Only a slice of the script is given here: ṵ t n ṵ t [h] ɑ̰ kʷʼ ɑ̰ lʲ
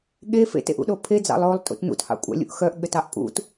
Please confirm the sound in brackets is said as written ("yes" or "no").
yes